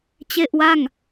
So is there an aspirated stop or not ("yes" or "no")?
no